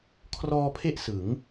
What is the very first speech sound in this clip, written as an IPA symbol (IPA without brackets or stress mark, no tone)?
kʰ